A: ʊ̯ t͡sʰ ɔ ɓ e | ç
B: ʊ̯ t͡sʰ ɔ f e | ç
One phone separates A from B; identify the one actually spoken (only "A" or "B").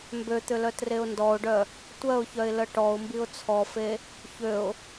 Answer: B